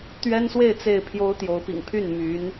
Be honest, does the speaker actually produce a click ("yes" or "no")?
no